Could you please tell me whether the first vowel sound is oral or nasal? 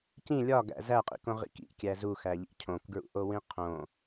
nasal